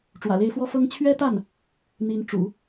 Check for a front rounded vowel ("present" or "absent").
absent